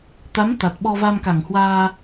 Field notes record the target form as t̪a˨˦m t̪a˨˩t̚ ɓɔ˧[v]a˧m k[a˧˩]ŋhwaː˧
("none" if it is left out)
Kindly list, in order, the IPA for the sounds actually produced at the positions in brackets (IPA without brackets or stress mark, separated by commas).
v, a˧˩